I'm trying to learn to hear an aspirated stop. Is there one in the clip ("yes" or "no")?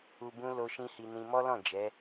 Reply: no